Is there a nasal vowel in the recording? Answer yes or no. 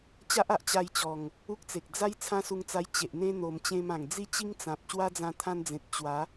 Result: yes